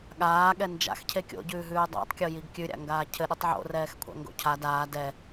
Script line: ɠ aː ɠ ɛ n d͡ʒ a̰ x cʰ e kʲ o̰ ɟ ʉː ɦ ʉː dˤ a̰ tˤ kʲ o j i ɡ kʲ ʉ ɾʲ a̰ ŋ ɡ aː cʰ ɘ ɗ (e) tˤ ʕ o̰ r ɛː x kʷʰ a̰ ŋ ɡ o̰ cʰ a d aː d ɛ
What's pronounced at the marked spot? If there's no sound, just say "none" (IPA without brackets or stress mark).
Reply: i